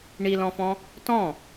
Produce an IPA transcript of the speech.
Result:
ɳilɔ̃fɔ̃ | tɔ̃

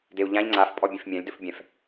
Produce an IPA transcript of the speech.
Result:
deu̯ʎãʎ ŋ͡ǀaf pʼɔbʲẽfmʲãlʲ dɵfbʲɛ̃f

